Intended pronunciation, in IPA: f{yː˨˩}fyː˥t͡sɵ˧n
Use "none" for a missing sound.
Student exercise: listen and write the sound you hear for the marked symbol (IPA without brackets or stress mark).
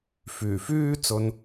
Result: yː˨˩